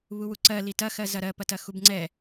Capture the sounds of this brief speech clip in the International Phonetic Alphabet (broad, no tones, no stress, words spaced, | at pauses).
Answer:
βuwuǀɜ litɐxɜ zɐɾɜpɐtɐ xubŋ͡ǀɛ